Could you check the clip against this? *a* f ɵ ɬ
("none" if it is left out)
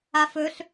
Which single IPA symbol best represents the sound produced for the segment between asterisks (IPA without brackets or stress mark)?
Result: a